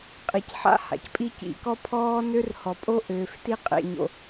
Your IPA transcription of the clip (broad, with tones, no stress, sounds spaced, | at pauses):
qʼ i˨ c ħ a̰˦ h a̰˨ c pʼ i˦ c ḭ˨ k ɔ˦ pʰ ɔː˦ n ø˦ r h ɔ˨ pʼ o˦ ʔ øː˨ f t i˦ qʼ ḛ˨ ɲ o̰˨